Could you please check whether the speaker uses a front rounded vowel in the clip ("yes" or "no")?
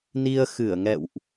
no